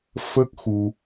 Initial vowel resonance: oral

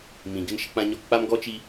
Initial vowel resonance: nasal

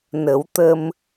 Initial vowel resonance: oral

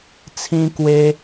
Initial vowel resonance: nasal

